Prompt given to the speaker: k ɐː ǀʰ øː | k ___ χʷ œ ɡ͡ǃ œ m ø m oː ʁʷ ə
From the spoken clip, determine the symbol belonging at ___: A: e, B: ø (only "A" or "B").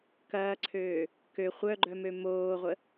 B